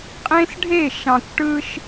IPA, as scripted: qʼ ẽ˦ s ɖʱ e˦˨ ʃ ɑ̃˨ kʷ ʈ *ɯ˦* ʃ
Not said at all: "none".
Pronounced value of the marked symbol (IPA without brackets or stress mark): ɯ˦